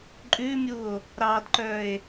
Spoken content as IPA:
ǃʼ ʉ mʲ u o̯ | ɾ ɑ d ǃ œ e̯

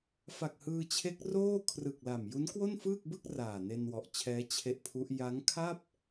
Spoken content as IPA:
f a˨˩ k̚ h ɯː˧ t͡ɕʰ e˦˥ k̚ r oː˥˩ kʰ r ɯ˨˩ k̚ l a˨˩ m j u˦˥ n k w o˥˩ n f ɯː˥˩ k̚ b ɯ˥˩ k̚ r aː˨˩ n e˧ n w ɔ˨˩ ʔ t͡ɕʰ ɛː˦˥ t͡ɕʰ e˦˥ ʔ pʰ u˦˥ ʔ j a˦˥ ŋ kʰ a˥˩ p̚

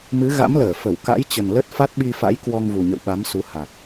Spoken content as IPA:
m ɨ˨˦ ɣ a̰˧˥ m l əː˧˩ f ə˧˩ w k a̰˧˥ j t͡ɕ ə˨˩ n l ə˦˥ t̚ f a˦˥ t̚ ɓ i˧ f a̰˧˥ j k w ɔ˧ ŋ v u˨˩ ɲ ə̰˧˨ w ɓ a˨˦ m s u˨˦ h a˨˩ t̚

